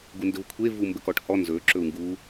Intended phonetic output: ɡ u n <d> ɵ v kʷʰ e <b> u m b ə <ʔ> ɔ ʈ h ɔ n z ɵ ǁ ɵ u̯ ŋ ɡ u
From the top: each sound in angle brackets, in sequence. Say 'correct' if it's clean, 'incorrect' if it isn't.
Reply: correct, incorrect, incorrect

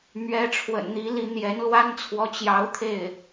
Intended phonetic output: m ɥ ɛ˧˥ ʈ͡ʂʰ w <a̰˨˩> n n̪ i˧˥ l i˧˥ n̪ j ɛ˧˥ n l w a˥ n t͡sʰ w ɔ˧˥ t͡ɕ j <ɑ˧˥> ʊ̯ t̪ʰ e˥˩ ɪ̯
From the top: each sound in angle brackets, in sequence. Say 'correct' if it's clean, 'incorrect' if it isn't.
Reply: incorrect, correct

